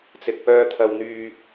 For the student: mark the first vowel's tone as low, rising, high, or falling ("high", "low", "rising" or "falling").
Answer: low